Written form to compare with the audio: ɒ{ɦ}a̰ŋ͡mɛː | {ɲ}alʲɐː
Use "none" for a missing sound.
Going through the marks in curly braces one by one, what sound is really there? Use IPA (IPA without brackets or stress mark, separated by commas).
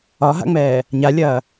ɦ, ɲ